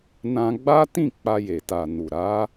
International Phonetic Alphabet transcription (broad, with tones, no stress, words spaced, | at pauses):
nã˧ɡ͡ba˦tĩ˦˨ k͡pa˧je˨ta˨nu˨ ɾa˨˦